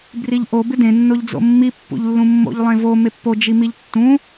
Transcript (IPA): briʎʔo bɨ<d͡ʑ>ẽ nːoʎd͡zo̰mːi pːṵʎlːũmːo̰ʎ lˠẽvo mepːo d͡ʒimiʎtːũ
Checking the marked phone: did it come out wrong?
yes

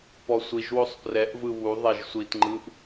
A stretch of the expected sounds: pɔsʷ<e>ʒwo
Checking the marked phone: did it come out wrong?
yes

